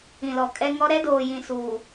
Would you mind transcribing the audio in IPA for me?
ĩ˨ l ɔ˨ kʼ ɛ˦ ŋ ɔ˦ ɾ ɛ˦ d oː˨ j ĩ˨ s uː˨

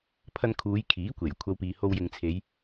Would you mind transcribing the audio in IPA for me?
pʰ ɐ˧ n kʰ uː˨˧ j kʰ iː˨˥ kʷ e˨˩ j kʷʰ ɐ˥ w p iː˧ h o˧ w j ɪ˨ ŋ t͡sʰ e˨˧ j

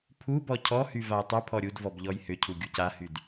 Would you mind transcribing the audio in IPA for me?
pʰ u b ɔ cʰ ɔ h y v a j tˤ y pʰ ɔ ɾʲ u d v ɔ b ʎ ɔ j h ʏ cʰ u ɡʲ u c a h y d

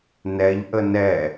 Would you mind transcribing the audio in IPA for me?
n ɛ ʎ ʔ ə n ɛ

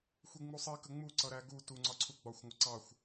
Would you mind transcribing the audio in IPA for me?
xʷ i ŋ͡m u sˤ i k ə ŋ͡m u ǀ ʌ ɾ æ ɡ u t u ŋ͡ǀ ɒ ǀʰ u ɡ͡b ɒ xʷ ŋʷ ʌ ǀ ɑ xʷ

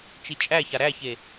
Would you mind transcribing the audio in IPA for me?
t͡ʃ i t͡ʃʼ æ ç a ɾ æ ç e

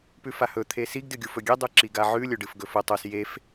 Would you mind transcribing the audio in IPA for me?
p ʉ f a h ɵ t̪ʰ e s i ɡ d ɨ ɡʲ u f ɵ ɡʲ e dˤ u ǁ i ɡ a ʕ ʉ lʲ ɵ ɖ ɨ f ɡ ɵ f ɵ tˤ o s j e f

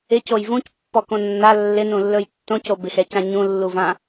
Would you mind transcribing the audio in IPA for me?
ɪ c o j v ũ c pː ɔ k õ nː a lː ɪ n ũ lː ɵ j tː õ c o b ɪ x ɛ c ã ɲ ũ lː u v ã

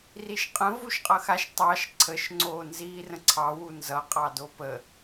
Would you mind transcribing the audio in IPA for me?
r i ʃ qʼ ə̃ v u ʃ qʼ ʌ x a ʃ tˤ ɑ ʃ ǀʰ ə ʃ ŋ͡ǀ oː n z iː r ə̃ ǀʰ ɑ w u n z ʌ qʼ ɑ d o p ə

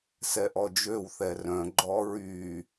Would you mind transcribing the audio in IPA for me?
s ɛ ʔ ɔ d͡ʒ ø w θ ɛ r œ̃ ɡ͡ǃ ɔ ɹ y

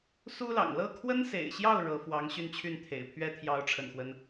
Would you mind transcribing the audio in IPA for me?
s u˥ l ɑ̰˨˩ ŋ l ɤ˥˩ kʰ w ə˥ n s ḛ˨˩ ɪ̯ ɕ j ɑ˥˩ ʊ̯ ɻ ɤ˧˥ f w ɑ˧˥ ŋ ɕ y˥˧ n t͡ɕʰ y˥˩ n t̪ʰ ḛ˨˩ ɪ̯ pʰ ɥ ɛ˥ t̪ʰ j ɑ˧˥ ʊ̯ ʈ͡ʂʰ ə̰˨˩ n x w ə˦ n

